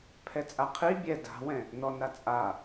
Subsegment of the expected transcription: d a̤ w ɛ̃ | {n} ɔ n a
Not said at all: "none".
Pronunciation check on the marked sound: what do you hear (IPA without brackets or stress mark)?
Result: n